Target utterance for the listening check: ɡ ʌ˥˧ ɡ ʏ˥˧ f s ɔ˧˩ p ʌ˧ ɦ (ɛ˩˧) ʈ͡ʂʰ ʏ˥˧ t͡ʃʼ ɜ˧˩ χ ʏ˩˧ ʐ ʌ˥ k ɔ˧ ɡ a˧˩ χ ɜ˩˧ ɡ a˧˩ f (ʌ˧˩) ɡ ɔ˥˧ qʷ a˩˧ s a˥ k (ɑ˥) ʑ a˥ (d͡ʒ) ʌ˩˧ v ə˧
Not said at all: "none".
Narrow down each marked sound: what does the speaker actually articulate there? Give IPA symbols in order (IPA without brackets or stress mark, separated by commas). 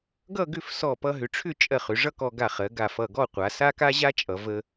ʏ˩˧, ʌ˧˩, a˥, t͡ʃʼ